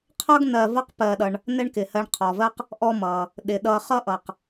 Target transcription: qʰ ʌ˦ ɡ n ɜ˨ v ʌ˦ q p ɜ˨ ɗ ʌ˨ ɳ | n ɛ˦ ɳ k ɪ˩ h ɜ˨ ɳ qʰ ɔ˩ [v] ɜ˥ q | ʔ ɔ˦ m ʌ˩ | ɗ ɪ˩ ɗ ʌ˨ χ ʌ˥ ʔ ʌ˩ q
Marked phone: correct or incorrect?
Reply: correct